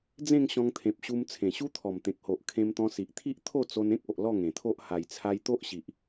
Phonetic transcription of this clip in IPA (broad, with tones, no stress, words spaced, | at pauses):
d͡zẽ˥˧ŋ ɕɔ̃˧ŋt̪ʰẽ˨p̚ɕu˧m t͡sʰẽ˨˩ɕu˦t̪ʰɔ˨˩m t̪ẽ˨k̚ho˨ʔ kʰẽ˧mt̪ɔ̃˧si˨ʔ t̪ʰi˦ʔ t̪ʰo˥˧t͡so˧nẽ˦k̚o˨ʔ lɔ˥˧ŋẽ˨˩t̪ʰo˦ʔ ha˨˩jt͡sʰa˧jt̪o˦ʔɕi˨ʔ